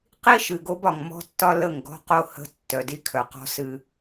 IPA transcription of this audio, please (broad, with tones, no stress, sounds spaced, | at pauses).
q i˦ ʃ ɨ˨ ɡ o˦ b ɒ˨ ŋ m ɔ̤˦ tː ɒ˦ l ə˦˨ ŋ ɡ ɔ̤˦ q o˦ h ə̤˦ tː œ˨ d i˦ kʰ œ˨ q ɔ̤˦ s ɨ˦